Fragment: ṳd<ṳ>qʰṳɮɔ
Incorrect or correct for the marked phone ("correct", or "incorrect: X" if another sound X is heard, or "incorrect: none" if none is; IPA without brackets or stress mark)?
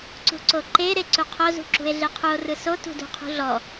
correct